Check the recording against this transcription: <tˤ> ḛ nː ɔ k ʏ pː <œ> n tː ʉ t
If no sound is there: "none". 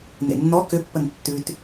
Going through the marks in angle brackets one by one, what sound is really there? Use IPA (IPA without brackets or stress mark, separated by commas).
n, ə